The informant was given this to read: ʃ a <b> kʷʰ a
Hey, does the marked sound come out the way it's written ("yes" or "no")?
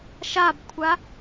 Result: yes